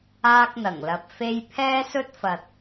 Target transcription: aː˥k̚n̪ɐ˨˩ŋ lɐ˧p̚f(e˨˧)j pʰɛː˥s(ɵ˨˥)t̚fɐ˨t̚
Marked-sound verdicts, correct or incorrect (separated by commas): incorrect, incorrect